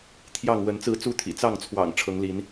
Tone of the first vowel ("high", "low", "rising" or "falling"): falling